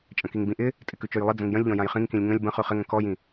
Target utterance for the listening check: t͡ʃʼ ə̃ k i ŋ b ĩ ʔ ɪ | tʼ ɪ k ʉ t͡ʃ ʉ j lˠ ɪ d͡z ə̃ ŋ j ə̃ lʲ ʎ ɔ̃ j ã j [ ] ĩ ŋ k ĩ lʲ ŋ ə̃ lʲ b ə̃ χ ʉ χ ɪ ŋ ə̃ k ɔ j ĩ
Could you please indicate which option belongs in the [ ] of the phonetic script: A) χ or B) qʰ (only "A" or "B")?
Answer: A